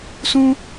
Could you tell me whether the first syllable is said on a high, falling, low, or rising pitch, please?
high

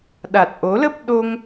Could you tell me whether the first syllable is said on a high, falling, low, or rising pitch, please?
low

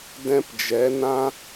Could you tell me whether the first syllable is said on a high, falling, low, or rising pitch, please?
high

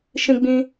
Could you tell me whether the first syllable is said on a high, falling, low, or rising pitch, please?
high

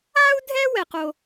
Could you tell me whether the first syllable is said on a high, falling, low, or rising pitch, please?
high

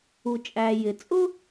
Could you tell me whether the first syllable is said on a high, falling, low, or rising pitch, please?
low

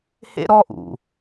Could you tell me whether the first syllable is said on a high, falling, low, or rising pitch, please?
high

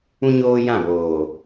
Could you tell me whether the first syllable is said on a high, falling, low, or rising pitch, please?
high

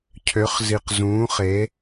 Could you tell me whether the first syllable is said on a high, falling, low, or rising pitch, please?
rising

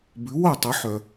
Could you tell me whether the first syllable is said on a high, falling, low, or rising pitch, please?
rising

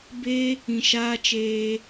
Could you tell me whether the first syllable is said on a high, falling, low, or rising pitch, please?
high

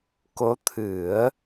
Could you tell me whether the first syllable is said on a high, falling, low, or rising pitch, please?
rising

